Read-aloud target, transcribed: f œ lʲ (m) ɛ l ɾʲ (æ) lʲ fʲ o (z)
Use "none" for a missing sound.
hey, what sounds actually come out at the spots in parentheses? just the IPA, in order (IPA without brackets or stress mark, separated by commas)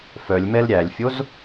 m, æ, z